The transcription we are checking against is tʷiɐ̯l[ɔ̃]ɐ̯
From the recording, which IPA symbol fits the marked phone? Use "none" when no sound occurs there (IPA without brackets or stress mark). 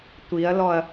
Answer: ɔ